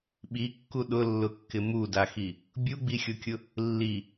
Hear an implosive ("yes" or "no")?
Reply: yes